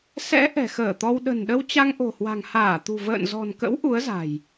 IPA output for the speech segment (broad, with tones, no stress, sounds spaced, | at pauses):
s ɛ̰˧˥ ʔ ɛ̤˨˩ x əː˧˩ t̪ ɔ˧ w ɗ ə̤˨˩ n ɗ ə˧ w t͡ɕ a˧ ŋ ʔ o̤˨˩ h w a̤˨˩ ŋ h aː˧˩ t̪ ṳ˨˩ v ə̰ː˧˨ n z ɔ̤˨˩ n k ə̰˧˥ w ʔ u˨˦ ə̯ z a̤˨˩ j